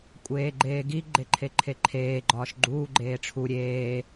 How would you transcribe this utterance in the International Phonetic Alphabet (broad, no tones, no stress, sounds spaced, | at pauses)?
kʷʼ eː ɡ͡ǃ eː ɡ i ɡ͡ǃ e ǃʰ e ǃʰ e ǃʰ eː ɡ͡ǃ ɒː ʃ ɡ͡ǃ uː ɡ͡ǃ eː ʈ͡ʂʰ u ɾʲ eː